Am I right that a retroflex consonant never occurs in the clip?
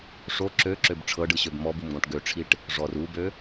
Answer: no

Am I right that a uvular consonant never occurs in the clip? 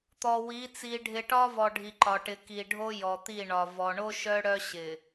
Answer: yes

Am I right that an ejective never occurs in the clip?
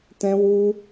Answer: yes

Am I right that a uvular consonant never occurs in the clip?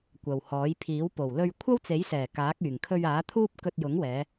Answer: yes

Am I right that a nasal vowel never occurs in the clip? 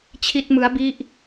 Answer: yes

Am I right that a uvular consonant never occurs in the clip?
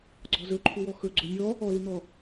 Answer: yes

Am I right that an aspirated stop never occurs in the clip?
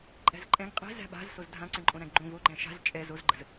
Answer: yes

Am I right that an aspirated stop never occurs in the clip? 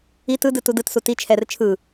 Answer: no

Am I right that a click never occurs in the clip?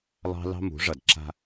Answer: no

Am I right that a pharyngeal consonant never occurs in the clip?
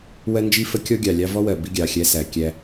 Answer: yes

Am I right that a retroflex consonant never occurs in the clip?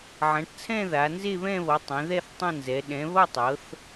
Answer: no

